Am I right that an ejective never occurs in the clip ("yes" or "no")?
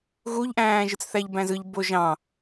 yes